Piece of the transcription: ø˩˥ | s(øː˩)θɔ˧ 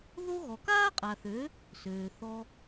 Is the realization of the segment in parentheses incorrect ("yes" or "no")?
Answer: no